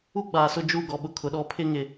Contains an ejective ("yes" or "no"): no